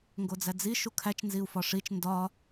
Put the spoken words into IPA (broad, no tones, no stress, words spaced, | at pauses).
ŋɡod͡zæd͡zi ʃukʰæt͡ʃ nziu̯fɒʂit͡ʃ ndɒ